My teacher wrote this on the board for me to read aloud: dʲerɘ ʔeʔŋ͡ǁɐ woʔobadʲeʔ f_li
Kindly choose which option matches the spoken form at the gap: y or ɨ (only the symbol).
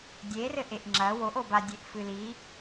ɨ